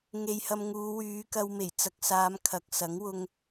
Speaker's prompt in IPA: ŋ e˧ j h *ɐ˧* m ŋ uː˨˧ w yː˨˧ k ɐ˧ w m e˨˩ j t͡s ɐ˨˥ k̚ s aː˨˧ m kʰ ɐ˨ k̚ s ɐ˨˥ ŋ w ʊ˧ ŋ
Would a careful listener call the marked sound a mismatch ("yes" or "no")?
no